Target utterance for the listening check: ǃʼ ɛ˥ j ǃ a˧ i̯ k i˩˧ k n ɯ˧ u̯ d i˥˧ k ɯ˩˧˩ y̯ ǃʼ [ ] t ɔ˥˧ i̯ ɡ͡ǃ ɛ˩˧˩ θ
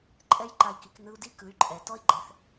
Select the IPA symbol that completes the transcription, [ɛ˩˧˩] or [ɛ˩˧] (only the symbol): ɛ˩˧